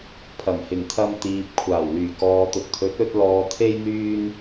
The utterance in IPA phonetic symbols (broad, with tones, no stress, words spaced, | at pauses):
pʰɐ˨˩ŋhɪ˨˩ŋt̪ʰɐ˧m t̪iː˨p̚kʷʰaː˨˩wlyː˨˩ kɔː˨t̪ʊ˨k̚t̪ʰɵ˨˥t̚ ɵ˧t̚ lɔː˨t̪ʰe˧j n̪yː˧n